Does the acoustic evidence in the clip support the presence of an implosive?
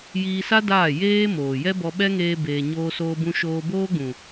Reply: yes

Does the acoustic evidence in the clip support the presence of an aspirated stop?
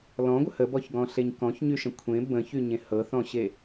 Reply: yes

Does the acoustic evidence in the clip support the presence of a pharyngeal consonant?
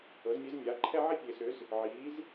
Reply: yes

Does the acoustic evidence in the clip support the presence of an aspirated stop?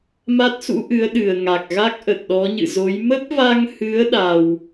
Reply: no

